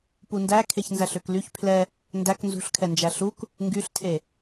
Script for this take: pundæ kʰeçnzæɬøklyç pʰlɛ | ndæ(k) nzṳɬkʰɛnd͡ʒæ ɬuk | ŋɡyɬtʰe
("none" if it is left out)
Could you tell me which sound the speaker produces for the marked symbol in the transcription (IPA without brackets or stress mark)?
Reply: k